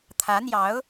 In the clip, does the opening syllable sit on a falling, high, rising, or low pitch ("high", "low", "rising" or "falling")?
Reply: rising